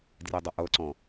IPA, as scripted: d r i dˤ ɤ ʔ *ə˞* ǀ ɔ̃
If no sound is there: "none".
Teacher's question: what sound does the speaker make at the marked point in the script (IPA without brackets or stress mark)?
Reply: ɤ